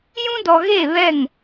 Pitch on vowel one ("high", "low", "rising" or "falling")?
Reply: high